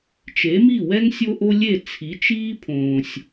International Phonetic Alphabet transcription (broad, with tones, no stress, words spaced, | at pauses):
t͡ʃe˩˥mi˥˩wɛ˥ŋ sʲo˥ʔo˥ lʲe˥˩t͡sʰi˩˥t͡ʃiː˥ pʰõː˩sʲ